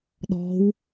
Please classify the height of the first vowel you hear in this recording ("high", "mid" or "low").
mid